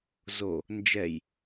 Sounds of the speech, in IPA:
z o | n d͡ʒ ɛ j

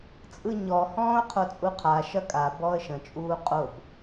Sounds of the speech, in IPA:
t͡sʼ ɯ ɲ ɔ h ɔ̃ː ʊ̯ qʰ o t͡sʼ u qʰ a ʃ ɐ kʼ a b ɔ ə̯ ʃ ə̃ t͡ʃʼ uː qʼ o b

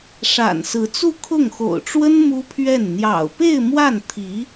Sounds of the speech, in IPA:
ʂ a̰˨˩ n s ɹ̩˧˥ t͡s u˥˧ kʰ ʊ˥˩ ŋ x o̰˨˩ ʊ̯ ʈ͡ʂ w ə˥ n m u˥ pʰ ɥ ɛ˥˩ n n̪ j ɑ̰˨˩ ʊ̯ p e˥˧ ɪ̯ m w a˥˩ n t̪ʰ i˧˥

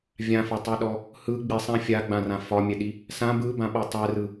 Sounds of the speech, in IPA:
vʲ ã f ɒ tˤ i ɗ ɔ | h ɯ ɡ͡b i sˤ ã fʲ a ɡ͡b ã r ã f ɒ mʲ ɛ ɗ i | s ã b ɯ b ã ɓ ɔ tˤ ɛ r ɯ

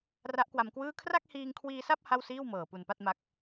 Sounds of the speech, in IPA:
r a˦˥ ʔ k w a˧ m k w ɯː˥˩ kʰ r a˥˩ k̚ h iː˧ ŋ kʰ w iː˧ s a˥˩ p̚ h a˥˩ w s iː˥˩ w m ɤː˨˩ p u˨˩ n p a˥˩ t̚ m a˦˥ k̚

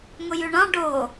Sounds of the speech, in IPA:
ŋ ʊ j ʉ ɳ ɑ̃ ɖ o

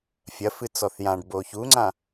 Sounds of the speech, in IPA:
fʲ ɐ f ɨ t͡s ɔ θ j ã ɖ b o ç u ŋ͡ǀ ã

